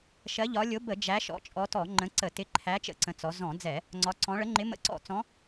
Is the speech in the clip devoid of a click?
no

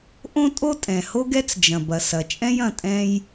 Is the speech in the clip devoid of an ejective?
no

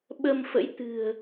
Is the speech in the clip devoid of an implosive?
no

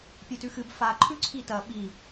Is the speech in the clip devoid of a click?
no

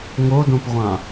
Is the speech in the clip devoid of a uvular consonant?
no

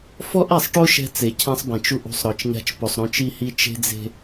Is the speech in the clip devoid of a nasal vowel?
no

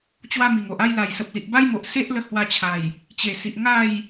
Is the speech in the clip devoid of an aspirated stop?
no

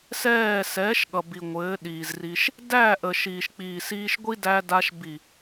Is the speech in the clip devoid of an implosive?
no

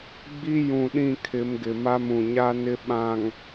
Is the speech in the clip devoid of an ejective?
yes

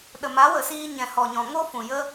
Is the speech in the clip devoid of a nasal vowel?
no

